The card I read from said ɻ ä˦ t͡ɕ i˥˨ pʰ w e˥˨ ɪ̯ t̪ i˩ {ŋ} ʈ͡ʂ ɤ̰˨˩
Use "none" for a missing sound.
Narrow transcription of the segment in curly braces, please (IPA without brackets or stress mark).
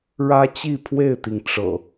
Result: ŋ